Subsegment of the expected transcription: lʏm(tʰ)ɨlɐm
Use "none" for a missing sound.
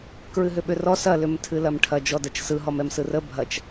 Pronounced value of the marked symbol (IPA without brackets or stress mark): tʰ